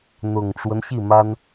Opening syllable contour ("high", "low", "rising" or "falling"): low